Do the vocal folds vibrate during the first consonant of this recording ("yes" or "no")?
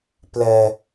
no